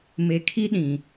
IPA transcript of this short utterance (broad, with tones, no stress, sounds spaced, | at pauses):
m e˨ kʰ i˦ ɗ ĩ˨